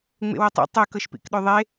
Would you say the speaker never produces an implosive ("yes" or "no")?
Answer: no